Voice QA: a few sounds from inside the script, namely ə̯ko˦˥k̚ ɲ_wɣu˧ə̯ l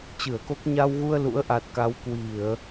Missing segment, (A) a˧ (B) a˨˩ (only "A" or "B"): A